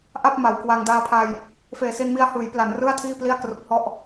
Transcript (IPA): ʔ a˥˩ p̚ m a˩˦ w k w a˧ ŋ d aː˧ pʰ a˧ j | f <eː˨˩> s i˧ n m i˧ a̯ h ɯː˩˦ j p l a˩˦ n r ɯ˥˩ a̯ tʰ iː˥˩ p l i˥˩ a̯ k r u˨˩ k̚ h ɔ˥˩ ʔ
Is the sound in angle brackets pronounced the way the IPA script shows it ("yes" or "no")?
yes